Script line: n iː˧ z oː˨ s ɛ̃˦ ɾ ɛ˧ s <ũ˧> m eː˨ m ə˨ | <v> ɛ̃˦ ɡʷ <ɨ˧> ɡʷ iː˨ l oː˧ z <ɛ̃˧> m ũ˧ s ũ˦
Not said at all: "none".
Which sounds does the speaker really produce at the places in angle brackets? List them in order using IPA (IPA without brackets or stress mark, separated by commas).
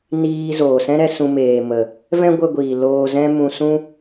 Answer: ũ˧, v, ə˧, ɛ̃˦